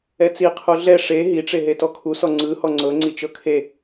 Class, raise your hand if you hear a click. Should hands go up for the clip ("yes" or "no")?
yes